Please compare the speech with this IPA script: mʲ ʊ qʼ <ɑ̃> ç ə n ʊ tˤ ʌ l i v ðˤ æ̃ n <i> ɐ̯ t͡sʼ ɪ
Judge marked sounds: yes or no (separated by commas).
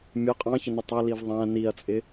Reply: yes, yes